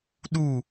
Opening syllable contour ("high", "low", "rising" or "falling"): falling